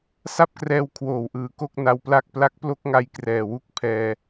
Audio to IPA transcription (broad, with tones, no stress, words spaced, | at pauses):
sa˥˩p̚krɛː˧w kʰwoː˨˩wʔɯː˨˩ ko˥˩k̚na˧wpla˥˩k̚ pla˦˥k̚plo˦˥k̚ŋa˧j krɛː˨˩wu˥˩k̚ pʰɛː˧